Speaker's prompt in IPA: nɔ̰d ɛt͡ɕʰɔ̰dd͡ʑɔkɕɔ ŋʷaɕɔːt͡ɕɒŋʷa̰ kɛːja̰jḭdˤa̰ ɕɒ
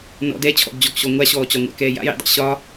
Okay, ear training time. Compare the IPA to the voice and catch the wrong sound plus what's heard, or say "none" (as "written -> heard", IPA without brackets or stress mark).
none